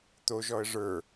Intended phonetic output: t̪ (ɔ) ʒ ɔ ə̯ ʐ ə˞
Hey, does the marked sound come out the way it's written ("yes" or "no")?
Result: no